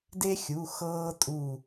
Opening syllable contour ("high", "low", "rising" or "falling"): high